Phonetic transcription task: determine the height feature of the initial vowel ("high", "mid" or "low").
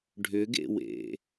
high